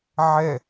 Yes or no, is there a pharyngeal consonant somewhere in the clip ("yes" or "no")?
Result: yes